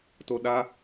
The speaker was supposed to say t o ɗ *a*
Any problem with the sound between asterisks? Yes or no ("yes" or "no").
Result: no